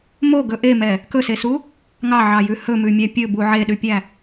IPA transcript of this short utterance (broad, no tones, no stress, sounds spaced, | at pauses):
m o ɡ ɵ ʔ e m ɛ | k ɵ s e s u | ŋ ɑ ʕ ɑ j ʉ h ɵ m ʉ mʲ æ pʲ ɵ b u ʕ e ɗ ʉ pʲ æ